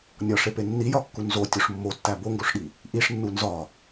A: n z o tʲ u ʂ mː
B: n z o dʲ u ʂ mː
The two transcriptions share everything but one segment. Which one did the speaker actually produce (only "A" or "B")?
A